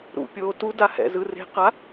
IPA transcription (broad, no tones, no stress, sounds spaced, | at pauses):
ɾ ṵ pʲ oː t u d a h ɛ̰ z ɯ r e̤ q a